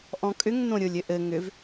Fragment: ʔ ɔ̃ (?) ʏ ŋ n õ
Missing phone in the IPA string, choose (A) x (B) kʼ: B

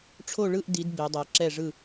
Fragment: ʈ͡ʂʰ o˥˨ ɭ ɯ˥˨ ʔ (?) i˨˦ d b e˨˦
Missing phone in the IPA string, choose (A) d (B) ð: A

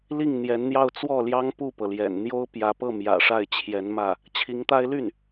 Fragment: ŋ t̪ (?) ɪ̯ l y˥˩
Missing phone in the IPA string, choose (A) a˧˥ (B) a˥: B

